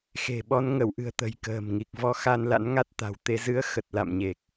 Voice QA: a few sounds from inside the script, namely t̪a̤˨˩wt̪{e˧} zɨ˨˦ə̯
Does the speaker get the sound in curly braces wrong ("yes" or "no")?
no